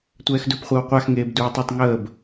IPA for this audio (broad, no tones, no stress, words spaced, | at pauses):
tʷɛːxdɵpχʷəːw qʷaxŋeːb duːtˤɵtˤ ŋəːb